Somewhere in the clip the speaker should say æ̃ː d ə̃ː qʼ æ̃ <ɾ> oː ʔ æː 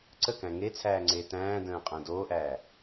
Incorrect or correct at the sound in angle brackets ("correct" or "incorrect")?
incorrect